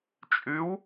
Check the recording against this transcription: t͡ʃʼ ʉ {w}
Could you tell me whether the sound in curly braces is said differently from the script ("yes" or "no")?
no